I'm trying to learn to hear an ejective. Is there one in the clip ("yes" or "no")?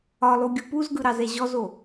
no